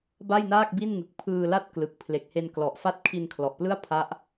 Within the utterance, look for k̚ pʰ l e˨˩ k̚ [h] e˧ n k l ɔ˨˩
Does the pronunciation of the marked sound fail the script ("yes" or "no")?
no